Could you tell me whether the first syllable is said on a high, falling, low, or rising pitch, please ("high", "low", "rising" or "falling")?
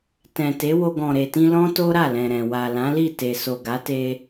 low